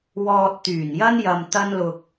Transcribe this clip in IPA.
w ɔː˧ t̚ t̪ yː˨˩ n j ɐ˥ n j ɐ˧ m t̪ ɐ˥ n l ʊ˧ k̚

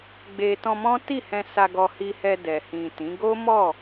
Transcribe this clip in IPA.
ɡ͡b e˨ t ɔ̃˧ m ɔ̃˦ t i˦˨ h ɛ̃˧ s a˧ ɡ ɔ˧ h i˧ h ɛ˧ d ɛ˨ h ĩ˨ t ĩ˨˦ ɡ o˦ m ɔ˦˨

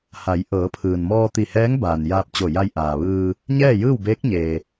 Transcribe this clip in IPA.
h a˩˧ j ʔ ɤː˩˧ pʰ ɯː˩ n m ɔː˧ t̪ i˧˩ h ɛː˧˥ ŋ b aː˩ n j aː˧ p̚ t͡ɕ o˧˩ j a˧ j ʔ aː˩ ʋ ɯː˧ | ɲ ɛː˥˨ j ɯː˥˨ w b eː˧˥ k̚ ɲ eː˩

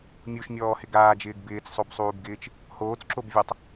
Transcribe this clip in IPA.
mʲ u ʃ mʲ ɔː h ɪ ɡ aː d͡ʒ ɪː ɡ b ɪː t͡s sˤ o b sˤ uː b ɡ ɪː t͡ʃ | h oː t͡s ǁ o b vʲ ɔ tˤ

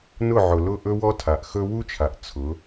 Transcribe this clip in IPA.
n ʊ˦˨ ʕ ʊ˨ l ʊ˦˨ ʔ ɵ˦ w ɔ˦ tʰ a˨ ʔ x ɵ˦ w u˦ t͡ʃʰ a˨ ʔ t͡sʰ ʊ˨˦

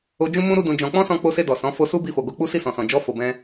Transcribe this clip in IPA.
o˧ d͡ʒ ũ˦ m ũ˦ ɾ u˦ d ũ˧ d͡ʒ ɔ̃˧ k͡p ɔ̃˦ s ɔ̃˧ k͡p o˧ s e˧ d ɔ˨ s ɔ̃˨˦ f o˧ s u˦ b i˧ f o˨ ɡ o˧ k͡p u˦ s i˦˨ s ɔ̃˨ s ɔ̃˨ d͡ʒ ɔ˧ f o˨ b ɛ̃˧

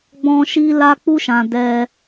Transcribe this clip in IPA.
ɡ͡b ɔ̃˧ ʃ i˧ l a˧ k͡p u˦ ʃ ã˧ d ɛ˧

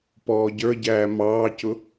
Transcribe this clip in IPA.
p ɔː ɟ ə˞ ɟ æː m ɑː c ʊ

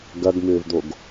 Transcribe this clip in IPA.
ɡ ɐ ɡ m ʏː v d̪ o ɡ

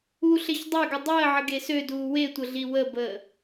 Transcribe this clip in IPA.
u ɬ e ç dˤ ø ɡ ə dˤ əː ʕ ə ɡ e s ø d uː w e tʷ ə ɮ i w ə b əː

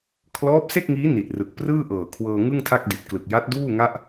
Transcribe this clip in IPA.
kʰ l ɔː˦˥ p̚ s e˥˩ k̚ ŋ iː˦˥ n i˨˩ t̚ r ɯ˨˩ k̚ p r ɯː˥˩ ʔ ɤː˨˩ kʰ w ɤː˧ ŋ ɯ˥˩ ŋ tʰ a˥˩ k̚ d i˨˩ t̚ k l ɯ˨˩ k̚ j a˦˥ t̚ d uː˥˩ ŋ a˥˩ ʔ

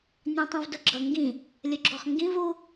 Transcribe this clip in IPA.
nʲ ɑ̃ tˤ ũ v d ʊ ɡ͡ǁ ʌ ŋ ɡ ĩ | lʲ ʊ ɡ͡ǁ ɔ χ ŋ ɡ ĩ v u

